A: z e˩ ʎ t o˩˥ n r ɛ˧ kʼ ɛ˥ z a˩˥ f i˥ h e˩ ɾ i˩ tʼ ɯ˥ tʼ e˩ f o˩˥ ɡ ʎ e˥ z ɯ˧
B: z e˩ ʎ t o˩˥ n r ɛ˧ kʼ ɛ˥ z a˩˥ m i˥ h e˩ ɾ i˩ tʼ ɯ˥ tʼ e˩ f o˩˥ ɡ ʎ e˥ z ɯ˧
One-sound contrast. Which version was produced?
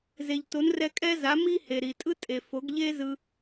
B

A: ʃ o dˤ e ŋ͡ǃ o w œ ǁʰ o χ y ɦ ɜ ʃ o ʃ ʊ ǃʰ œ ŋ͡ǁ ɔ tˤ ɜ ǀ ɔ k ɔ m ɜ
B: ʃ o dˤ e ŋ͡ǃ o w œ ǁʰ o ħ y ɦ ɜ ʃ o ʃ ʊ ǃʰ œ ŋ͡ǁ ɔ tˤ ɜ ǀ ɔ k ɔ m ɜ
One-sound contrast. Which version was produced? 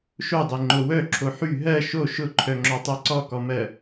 B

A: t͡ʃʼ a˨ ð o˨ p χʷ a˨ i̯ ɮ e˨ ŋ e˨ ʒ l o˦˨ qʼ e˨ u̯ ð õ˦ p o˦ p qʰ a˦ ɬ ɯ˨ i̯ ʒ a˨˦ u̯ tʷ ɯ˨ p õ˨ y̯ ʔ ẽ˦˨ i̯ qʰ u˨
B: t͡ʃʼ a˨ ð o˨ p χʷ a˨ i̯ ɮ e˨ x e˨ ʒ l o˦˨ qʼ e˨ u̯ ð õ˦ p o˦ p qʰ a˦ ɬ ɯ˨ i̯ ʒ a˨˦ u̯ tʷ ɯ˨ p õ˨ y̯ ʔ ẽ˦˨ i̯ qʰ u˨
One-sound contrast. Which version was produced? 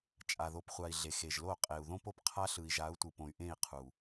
B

